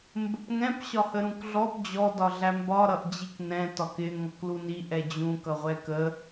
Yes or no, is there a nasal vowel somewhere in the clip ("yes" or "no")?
yes